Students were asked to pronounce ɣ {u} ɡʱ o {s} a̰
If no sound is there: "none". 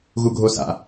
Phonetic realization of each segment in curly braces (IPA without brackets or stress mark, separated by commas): u, s